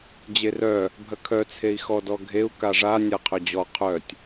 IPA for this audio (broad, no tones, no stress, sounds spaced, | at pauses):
d͡ʑ e r œ | bʱ ɐ kʰ œ t͡sʰ e i̯ x ɔ d ɔ ɡʱ e u̯ k a ʐ a nʲ a qʰ œ d͡ʑ ɔ qʰ œ tʲ